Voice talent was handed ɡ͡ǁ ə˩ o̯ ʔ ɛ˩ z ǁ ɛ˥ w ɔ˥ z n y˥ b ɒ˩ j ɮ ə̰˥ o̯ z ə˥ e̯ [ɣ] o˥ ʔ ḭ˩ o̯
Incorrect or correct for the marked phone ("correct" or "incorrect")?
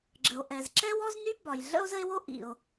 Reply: incorrect